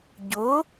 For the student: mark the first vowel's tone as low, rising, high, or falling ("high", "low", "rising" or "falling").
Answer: rising